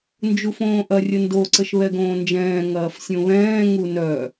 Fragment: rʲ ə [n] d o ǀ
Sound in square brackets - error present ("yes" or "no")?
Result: no